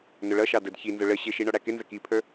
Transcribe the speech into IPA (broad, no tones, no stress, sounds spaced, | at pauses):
n ʊ ɭ ʌ ʃ ɑ d ə d ç i n z ʊ ɭ ə ɕ ɪ ʃ i ɳ ɔ ɽ æ k ɪ n z ə k i pʰ ə˞